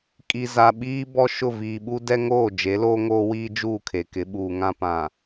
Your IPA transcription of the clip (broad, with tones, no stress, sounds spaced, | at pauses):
kʼ i˨ z a˨ ɓ iː˦ b ɔ˦ ʃ ʊ˦˨ v iː˨ ɓ u˦ d ɛ˦ ŋ oː˦˨ d͡ʒ e˨˦ l oː˦ ŋ oː˦ w iː˦ d͡ʒ uː˦˨ kʰ e˨ k ɪ˨˦ ɓ uː˨ ŋ ã˦ p ã˨